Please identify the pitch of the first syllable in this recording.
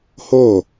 falling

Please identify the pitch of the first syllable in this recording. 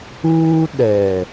high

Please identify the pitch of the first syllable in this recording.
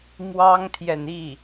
high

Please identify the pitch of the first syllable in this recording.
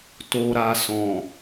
low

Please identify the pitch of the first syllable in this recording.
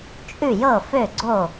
falling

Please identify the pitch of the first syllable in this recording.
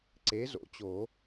rising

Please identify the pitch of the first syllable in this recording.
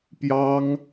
high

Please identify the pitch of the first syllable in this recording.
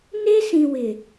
high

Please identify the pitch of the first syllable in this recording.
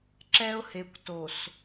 high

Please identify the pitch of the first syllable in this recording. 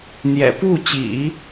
low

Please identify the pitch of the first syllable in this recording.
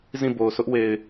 falling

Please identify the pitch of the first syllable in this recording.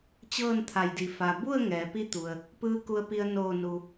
falling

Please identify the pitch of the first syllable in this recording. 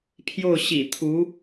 falling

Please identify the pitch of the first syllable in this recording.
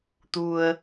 low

